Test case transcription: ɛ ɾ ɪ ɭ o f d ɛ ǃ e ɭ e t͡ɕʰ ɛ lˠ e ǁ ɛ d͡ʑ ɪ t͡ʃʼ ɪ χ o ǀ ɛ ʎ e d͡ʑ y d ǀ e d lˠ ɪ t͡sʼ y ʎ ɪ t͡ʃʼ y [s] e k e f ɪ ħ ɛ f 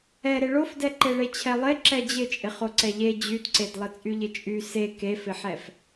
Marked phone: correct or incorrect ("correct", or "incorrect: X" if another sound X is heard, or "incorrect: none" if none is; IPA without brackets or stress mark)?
correct